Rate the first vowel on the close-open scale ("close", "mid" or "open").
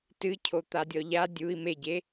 close